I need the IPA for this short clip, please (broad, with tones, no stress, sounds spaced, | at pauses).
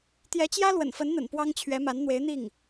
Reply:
t̪ j ɛ˧˥ t͡ɕ j ä˥ l w ə̰˨˩ n f ə˧˥ n n̪ ə̰˨˩ n p w ɑ˥ ŋ t͡ɕʰ ɥ ɛ˧˥ m a˧˥ n n̪ w e˧˥ ɪ̯ n̪ i˥˩ ŋ